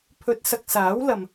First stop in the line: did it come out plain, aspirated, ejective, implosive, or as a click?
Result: aspirated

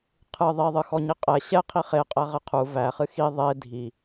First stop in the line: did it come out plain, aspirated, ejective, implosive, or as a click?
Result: aspirated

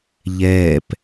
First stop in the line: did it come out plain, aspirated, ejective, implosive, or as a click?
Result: plain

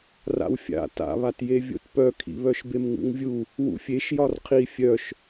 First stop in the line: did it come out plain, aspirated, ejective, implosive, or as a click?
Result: plain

